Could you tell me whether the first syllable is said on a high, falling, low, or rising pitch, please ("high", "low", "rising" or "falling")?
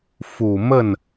low